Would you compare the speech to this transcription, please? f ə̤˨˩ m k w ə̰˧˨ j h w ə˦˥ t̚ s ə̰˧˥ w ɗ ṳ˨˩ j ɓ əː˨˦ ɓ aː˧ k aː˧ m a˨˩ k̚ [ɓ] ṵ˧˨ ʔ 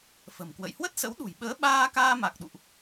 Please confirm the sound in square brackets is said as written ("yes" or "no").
no